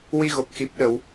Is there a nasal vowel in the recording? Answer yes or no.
no